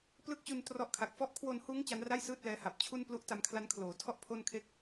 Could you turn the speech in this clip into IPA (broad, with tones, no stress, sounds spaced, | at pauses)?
p l ɯ˦˥ k̚ t͡ɕ u˧ n t r ɔ˦˥ ʔ kʰ a˨˩ k̚ f ɔ˦˥ ʔ kʰ w o˧ n h uː˦˥ ŋ t͡ɕ a˦˥ n r a˥˩ j s ɯː˥˩ t̚ l ɛː˦˥ h a˨˩ p̚ t͡ɕʰ u˥˩ n p l u˥˩ ʔ t a˧ m kʰ l a˦˥ n kʰ l oː˩˦ tʰ ɔ˥˩ ʔ pʰ o˥˩ n kʰ e˥˩ k̚